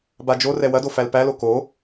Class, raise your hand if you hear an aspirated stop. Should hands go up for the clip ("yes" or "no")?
no